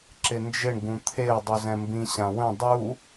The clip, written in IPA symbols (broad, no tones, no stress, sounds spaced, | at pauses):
ǁ ɪ n d͡ʒ ɪ ɳ ɡ ũ t̪ʰ e ʊ̯ dˤ u z ɛ̃ m b ĩ ɕ ã w ə̃ dˤ u